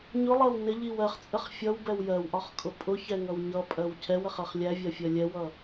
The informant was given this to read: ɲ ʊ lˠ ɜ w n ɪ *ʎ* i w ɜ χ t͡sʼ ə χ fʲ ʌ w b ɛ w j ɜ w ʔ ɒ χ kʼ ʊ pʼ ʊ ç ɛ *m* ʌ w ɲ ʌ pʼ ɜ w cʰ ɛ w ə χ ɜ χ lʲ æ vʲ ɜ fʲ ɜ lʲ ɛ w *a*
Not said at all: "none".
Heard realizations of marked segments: ʎ, ŋ, ʌ

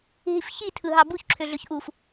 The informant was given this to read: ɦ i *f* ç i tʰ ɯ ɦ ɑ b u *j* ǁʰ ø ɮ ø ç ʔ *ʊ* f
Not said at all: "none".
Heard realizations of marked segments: f, ç, u

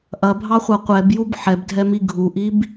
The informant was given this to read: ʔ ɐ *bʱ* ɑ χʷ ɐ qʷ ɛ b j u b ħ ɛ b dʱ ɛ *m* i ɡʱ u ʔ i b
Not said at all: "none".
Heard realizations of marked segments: bʱ, m

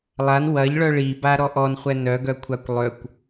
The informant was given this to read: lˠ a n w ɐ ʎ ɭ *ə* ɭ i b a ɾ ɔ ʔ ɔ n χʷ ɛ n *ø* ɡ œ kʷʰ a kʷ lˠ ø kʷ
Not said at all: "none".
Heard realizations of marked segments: œ, œ

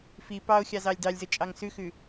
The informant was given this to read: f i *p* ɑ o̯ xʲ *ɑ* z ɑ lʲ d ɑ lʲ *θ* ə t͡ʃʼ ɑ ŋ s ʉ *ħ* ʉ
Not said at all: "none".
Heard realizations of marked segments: p, ɑ, z, x

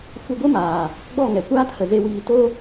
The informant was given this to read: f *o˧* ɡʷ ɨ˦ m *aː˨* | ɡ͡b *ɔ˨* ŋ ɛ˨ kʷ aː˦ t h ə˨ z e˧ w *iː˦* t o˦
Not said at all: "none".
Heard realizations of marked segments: u˧, aː˨, ɔ˦˨, iː˧

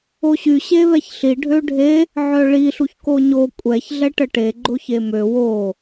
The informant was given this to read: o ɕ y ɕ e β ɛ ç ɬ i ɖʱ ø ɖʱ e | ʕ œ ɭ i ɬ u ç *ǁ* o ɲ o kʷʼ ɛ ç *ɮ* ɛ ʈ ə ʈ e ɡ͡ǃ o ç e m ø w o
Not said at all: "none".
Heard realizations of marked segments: k, ɮ

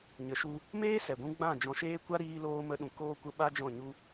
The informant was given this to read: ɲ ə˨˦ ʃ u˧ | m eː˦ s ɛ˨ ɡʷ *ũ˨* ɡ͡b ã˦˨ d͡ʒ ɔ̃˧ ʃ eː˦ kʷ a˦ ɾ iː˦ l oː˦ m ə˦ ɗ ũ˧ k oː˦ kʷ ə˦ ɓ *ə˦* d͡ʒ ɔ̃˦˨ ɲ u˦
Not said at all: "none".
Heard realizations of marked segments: ũ˧, a˦

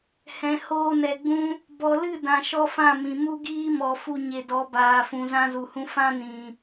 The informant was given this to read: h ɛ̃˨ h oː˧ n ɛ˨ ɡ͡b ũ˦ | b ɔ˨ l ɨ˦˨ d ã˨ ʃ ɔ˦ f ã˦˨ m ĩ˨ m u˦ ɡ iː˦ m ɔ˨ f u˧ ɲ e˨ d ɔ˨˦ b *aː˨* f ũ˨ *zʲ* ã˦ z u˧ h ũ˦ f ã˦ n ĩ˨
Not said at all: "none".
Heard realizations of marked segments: aː˨, z

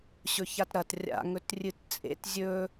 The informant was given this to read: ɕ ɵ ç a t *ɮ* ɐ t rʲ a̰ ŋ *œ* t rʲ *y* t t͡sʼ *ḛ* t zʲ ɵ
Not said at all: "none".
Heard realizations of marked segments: ɾ, ɵ, ɨ, ḛ

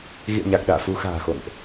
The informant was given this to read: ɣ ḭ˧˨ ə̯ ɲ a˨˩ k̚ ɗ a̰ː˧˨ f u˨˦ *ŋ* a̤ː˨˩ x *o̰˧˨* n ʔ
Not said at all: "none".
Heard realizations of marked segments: x, o̰˧˨

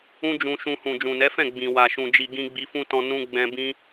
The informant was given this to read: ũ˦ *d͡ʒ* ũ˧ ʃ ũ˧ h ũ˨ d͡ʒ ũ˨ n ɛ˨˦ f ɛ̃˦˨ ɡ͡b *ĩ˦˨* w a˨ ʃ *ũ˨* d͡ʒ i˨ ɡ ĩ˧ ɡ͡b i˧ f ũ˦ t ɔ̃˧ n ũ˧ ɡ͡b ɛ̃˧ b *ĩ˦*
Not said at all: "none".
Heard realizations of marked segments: d͡ʒ, ĩ˨, ũ˨, ĩ˦

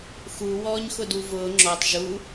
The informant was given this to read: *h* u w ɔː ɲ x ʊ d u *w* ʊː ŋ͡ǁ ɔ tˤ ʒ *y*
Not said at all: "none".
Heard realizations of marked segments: x, v, u

